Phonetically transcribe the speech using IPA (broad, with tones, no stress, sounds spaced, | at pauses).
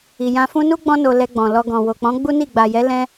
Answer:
i˨ j ã˧ f ũ˧ n u˦ ɡ͡b ɔ̃˧ n o˨ l ɛ˧ ɡ͡b ɔ̃˨ l ɔ˧ ɡ ɔ̃˨ w o˨ k͡p ɔ̃˨˦ ɡ͡b u˦ n i˦˨ ɡ͡b a˨ j ɛ˨˦ l ɛ̃˧